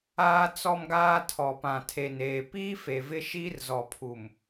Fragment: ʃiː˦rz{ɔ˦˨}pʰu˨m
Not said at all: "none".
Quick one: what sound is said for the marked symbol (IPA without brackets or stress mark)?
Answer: ɔ˨